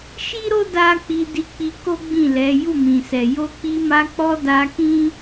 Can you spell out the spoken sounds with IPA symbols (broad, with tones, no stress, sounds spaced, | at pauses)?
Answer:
ʃ i˦ ɾ o˦ d a˦ k͡p i˧ d i˧ k͡p i˧ k o˦ ɡ͡b ĩ˦˨ l ɛ˨˦ j u˦˨ m ĩ˨ s ɛ˨ j o˧ k͡p i˧ m a˧ k͡p ɔ˧ d a˧ k ĩ˦